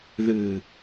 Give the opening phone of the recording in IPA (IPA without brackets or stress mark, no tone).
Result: ð